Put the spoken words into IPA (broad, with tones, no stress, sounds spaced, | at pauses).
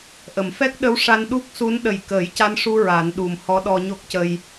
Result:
ʔ ə˨˩˨ m f ɛ˦˥ k̚ ɗ ə˧˥ w ʂ a˧ n ɗ u˦˥ k̚ s u˧˥ n ɗ ə˨˩ j k əː˨˩˦ j c a˧ n ʂ u˧ ɹ a˨˩˦ n ɗ u˨˩ m h ɔ˧˥ ɗ ɔ˧ ɲ o˦˥ k̚ c ə˧ j